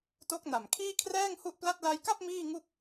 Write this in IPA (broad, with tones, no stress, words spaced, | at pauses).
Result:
to˦˥k̚na˨˩m kʰiː˥˩kʰrɛː˥˩ŋhu˥˩ʔpla˥˩t̚ la˧jka˥˩p̚ miː˥˩ŋu˥˩k̚